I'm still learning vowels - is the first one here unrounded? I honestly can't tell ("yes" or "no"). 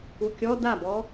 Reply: no